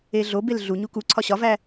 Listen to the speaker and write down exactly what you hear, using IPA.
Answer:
eɮobel ɮu ɲukuǀʰɒ ɕɒvæ

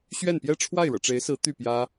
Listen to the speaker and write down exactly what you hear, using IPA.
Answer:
ɕɥɛ˥˩npjɛ˥ ʈ͡ʂʰwa˥˩ɪ̯ɻɤ̰˨˩ʈ͡ʂe˧˥ɪ̯sɹ̩˧˥ t̪y˥˩pjä˥

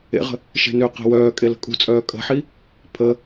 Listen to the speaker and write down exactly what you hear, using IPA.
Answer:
ḛʁə̤ | ʃe̤nø qe̤wœː kʼelə̤kʼṳt͡sʼœː kʼə̤ħi | pʰə

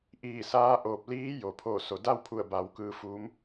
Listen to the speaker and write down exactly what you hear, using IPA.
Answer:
ʔiː˧˩saː˧˥ʔoː˧˩p̚ liː˧˥jo˩pʰo˧˩ so˩da˥˨wpʰu˧˩ə̯ba˩˧w kɯː˧fuː˧˥m

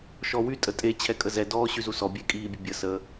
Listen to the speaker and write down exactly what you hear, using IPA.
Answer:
ʃɔwy tʼətʼe t͡ɕʰɛkʼəzɛ dɔːɕyzusɔ bʲekʼiːbʲəbʲə sə

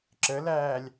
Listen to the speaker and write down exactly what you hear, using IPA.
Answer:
ǁəlæːlʲ

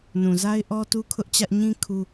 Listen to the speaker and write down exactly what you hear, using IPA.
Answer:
nũ˨za˦ɪ̯ʔɔ˦ tu˦kʰʊ˦ʔt͡ɕä˦ʔ ɲĩ˦ kʰu˦

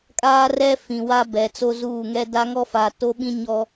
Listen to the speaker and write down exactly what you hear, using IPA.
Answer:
kʼaː˦rɛ˦ fĩ˨wa˦bɛ˨t͡so˦ zuː˦˨ŋɛ˦ da˦ŋɔ˦fa˨ to˦ɓĩ˦ɲɔ˦

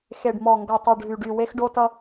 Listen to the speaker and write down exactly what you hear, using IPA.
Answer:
xe˨ɖmɔ˨ŋɡʌ˨tˤo˨ɖ ɦy˨ɖy˨ we˦xɖo˦tʌ˦

